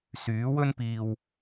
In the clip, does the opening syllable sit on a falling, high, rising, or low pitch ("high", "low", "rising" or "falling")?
rising